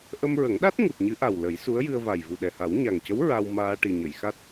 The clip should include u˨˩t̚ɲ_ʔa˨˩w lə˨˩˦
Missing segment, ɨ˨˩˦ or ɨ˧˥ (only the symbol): ɨ˧˥